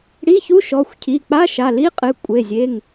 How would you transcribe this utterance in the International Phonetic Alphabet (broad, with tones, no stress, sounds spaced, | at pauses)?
ɽ i˧˥˧ ç u˧˥˧ ʃ ɔ˩˧˩ xʷ cʰ i˩˧˩ k͡p a˧˥˧ ʃ a˩˧˩ l i˧˥˧ qʼ ɨ˩˧˩ kʷʼ e˩˧˩ zʲ e˩˧˩ ŋ